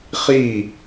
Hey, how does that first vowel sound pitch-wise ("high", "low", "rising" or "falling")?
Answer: falling